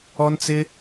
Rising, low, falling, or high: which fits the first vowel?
high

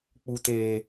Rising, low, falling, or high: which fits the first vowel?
low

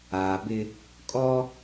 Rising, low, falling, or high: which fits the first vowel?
low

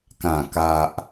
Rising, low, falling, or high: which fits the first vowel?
low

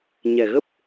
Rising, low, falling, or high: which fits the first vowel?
low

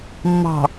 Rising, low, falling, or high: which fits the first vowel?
low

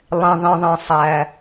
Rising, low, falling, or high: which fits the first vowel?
low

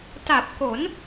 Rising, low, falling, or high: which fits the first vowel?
low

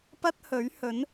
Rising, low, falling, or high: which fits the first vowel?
high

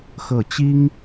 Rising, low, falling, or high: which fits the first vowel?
falling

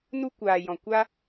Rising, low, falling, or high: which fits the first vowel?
high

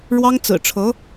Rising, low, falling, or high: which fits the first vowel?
high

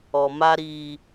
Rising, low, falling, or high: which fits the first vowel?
low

